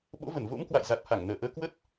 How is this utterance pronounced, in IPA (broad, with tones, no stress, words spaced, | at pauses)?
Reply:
ɓo̰˧˥və˧˩nvo̰˧˥m kwa̰˧˨j za˨˩t̚ha˧˩ŋ nəː˧˩ʔəː˧ kwə˦˥t̚